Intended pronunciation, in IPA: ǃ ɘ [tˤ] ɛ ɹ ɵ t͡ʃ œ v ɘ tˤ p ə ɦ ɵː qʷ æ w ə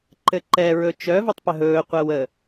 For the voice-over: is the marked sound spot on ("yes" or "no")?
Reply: no